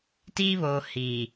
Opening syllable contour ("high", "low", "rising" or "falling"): high